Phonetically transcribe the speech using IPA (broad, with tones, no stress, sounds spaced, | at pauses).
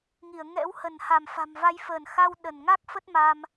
ŋ i˧˩ ə̯ ŋ ɛ̰˧˥ w h ə˧˩ n h a˧˩ m f a̤˨˩ m v a˨˦ j f əː˧˩ n x a˧ w ɗ ə˧˩ n ŋ a˦˥ k̚ f ə˦˥ t̚ m a˧ m